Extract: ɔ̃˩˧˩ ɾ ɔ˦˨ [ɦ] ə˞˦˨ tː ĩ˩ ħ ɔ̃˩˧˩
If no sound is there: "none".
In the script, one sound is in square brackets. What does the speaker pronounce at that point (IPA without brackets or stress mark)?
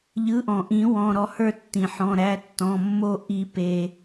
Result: h